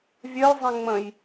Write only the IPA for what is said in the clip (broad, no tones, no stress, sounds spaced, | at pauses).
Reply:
vʲ œ j zˤ ẽ ŋ͡m ə̃ j